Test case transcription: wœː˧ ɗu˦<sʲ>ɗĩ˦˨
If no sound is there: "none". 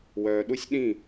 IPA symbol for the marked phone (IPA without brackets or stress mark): sʲ